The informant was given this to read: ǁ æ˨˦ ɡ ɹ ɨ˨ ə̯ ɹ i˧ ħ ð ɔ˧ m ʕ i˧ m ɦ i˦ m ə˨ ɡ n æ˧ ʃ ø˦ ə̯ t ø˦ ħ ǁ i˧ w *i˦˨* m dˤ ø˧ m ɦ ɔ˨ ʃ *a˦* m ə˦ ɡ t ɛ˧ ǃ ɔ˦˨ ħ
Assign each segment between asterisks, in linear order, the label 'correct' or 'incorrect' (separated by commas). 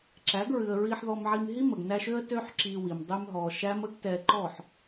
incorrect, incorrect